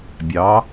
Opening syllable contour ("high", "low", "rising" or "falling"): rising